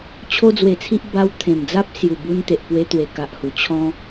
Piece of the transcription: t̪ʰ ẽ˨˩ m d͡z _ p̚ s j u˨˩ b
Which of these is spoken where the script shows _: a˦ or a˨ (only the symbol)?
a˦